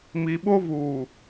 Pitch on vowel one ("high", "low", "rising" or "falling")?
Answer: low